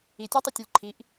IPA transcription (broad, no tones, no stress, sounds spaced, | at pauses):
i tʲ æ tˤ y tʲ o lʲ ǃʰ i ʔ